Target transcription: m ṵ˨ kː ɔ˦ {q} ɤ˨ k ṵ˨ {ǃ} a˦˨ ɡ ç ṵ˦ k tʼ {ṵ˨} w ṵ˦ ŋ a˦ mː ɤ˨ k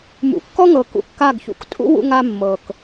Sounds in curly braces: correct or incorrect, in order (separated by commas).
incorrect, incorrect, incorrect